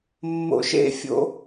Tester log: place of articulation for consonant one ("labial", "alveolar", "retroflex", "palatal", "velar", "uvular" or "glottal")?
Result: labial